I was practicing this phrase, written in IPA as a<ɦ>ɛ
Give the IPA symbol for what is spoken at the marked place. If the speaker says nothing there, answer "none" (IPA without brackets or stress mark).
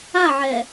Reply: ʕ